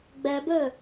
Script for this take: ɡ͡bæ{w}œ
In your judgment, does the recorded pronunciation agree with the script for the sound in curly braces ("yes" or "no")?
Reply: no